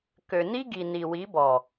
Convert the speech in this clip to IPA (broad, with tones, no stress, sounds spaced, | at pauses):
k ø˨ n i˦ ɡ i˨ n i˨ w i˨˦ b ɔ˨